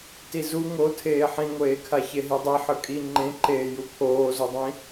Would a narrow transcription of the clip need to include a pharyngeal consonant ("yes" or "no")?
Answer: yes